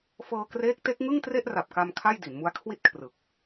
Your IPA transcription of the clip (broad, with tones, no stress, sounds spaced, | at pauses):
f ɤː˧ k r eː˦˥ k̚ t e˦˥ k̚ ŋ ɯ˥˩ ŋ t r e˥˩ ʔ r a˨˩ p̚ k a˧ m kʰ a˥˩ j d i˩˦ n m u˦˥ a̯ kʰ w i˥˩ t̚ kʰ r ɯ˨˩ k̚